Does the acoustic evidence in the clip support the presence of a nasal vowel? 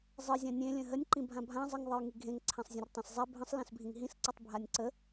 yes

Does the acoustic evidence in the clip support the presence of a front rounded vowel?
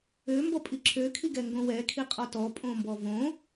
yes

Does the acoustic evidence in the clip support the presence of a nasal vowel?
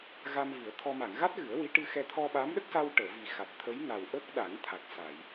no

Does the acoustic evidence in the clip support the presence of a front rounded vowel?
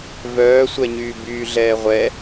yes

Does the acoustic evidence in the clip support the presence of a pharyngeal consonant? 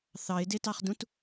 no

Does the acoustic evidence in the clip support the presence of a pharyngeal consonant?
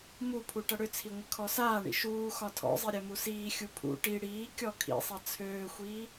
no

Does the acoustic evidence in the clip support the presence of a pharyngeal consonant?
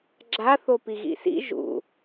no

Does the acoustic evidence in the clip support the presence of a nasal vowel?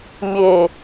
no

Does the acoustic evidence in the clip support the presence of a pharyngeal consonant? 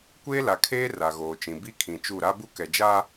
no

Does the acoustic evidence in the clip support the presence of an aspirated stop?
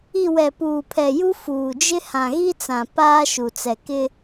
yes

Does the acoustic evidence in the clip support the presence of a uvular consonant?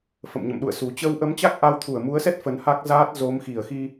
no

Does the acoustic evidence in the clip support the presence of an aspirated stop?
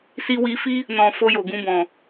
no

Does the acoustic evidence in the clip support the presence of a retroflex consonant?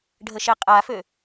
yes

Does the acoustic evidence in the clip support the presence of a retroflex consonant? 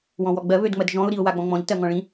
yes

